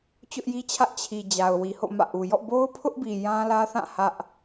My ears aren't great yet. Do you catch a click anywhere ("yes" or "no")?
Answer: no